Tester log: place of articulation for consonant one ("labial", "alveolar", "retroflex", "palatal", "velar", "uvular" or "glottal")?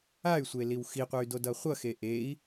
alveolar